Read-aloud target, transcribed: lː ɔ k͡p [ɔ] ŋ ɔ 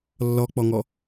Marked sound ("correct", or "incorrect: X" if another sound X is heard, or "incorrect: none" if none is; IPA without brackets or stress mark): correct